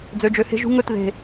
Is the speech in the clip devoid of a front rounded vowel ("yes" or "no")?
no